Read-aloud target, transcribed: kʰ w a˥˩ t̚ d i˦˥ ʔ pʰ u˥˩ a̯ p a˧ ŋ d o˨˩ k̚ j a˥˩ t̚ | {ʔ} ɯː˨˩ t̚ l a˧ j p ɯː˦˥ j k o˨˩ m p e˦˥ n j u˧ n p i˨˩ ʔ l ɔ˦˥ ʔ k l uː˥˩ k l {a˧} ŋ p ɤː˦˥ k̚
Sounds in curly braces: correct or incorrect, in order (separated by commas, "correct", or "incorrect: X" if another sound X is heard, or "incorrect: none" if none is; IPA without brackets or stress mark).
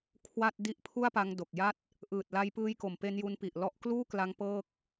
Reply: correct, correct